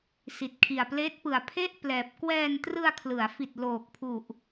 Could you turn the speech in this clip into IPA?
s i˨˩ t̚ kʰ i˨˩ a̯ p l eː˦˥ t̚ p ɯ˨˩ a̯ pʰ e˥˩ ʔ p l ɛː˨˩ p̚ k w ɛː˧ n t r ɯ˧ a̯ kʰ l ɯ˩˦ a̯ f i˨˩ t̚ l oː˨˩ k̚ pʰ u˨˩ ʔ

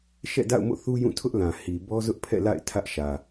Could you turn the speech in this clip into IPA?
ʃ ɛ̰˦˨ d a̰˦˨ ʊ̯ m o̰˦˨ θ u˦ j ũ˦˨ tʰ ʊ˦ ʔ l ã˨ h i˨ b ɔ˦ z ʊ˦ ʔ pʰ ɛ̰˦˨ l a̰˦˨ ɪ̯ tʰ ä˦ ʔ ʃ ä˨

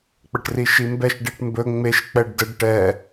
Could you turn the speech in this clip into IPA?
k͡p ə ʈ r i ʃ i m b ɛ ʃ ɖ i ʈ m b ɵ ŋ͡m e ʃ k͡p ɛ ɖ d ə ɖ ʈ ɛ

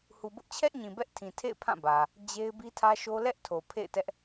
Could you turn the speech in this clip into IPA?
h u˨ b ʊ˦ ʔ t͡ɕʰ ɛ˦ ʔ ɲ ĩ˨ b ɛ˦ ʔ tʰ ĩ˨ tʰ ḛ˦˨ ɪ̯ pʰ ã˦˨ b ä˨ | d͡ʑ e˦ ɪ̯ b i˦ tʰ ä˦ ʃ o˦ l ɛ˦ ʔ tʰ o˨ pʰ ḛ˦˨ ɪ̯ t ɛ˦ ʔ

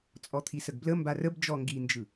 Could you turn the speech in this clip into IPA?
t͡sʼ ɔ t̪ʰ i s ə ɡ b l ə m b a r ə b d͡ʒ ɔ ŋ ɡ i n d͡ʒ ɯ

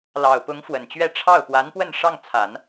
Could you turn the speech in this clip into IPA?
l ɑ˨˩ ʊ̯ p ʊ˧˥ ŋ f w ə˨˩ n t͡ɕ ɥ ɛ˥˧ ʈ͡ʂʰ ɑ˥˩ ʊ̯ p w a˧˥ n p w ə˥˧ n ʂ ɑ˥˩ ŋ t͡sʰ a˨˩˦ n

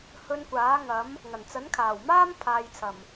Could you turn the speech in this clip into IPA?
h ɵ˧ n kʷ aː˨˥ ŋ ɐ˨˥ m | ŋ ɐ˨˩ n t͡s ɐ˨˥ n kʰ aː˨˩ w m aː˥ m pʰ aː˨ j t͡sʰ ɐ˨˩ m

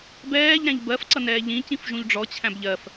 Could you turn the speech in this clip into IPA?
b ɛː ʎ ɾ æ̃ ʎ b ɜ f ǀ ʌ n ɛː ʎ ĩ c ĩ f ʒ ũ ʎ ɖ͡ʐ ɔ t͡ɕʰ æ̃ b ʎ ɜ f

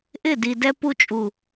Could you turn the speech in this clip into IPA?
ʔ ɪ˦˨ d i˨ d ɛ˧ p u˧ t͡ʃʼ u˨

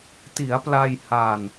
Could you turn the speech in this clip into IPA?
t i˩˦ a̯ p l a˧ j h a˧ n

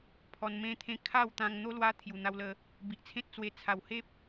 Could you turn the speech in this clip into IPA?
pʰ ɔ˧ n m ẽ˦ t̪ʰ ẽ˥˧ kʰ a˥˧ w t̪ ã˧ ŋ n̪ o˦ l w a˦ t̪ʰ j u˨˩ n̪ a˧ w l ə˧ | b i˨ ʔ t͡sʰ ẽ˦ t̚ t͡s w e˧ t͡sʰ a˨˩ w h e˦ p̚

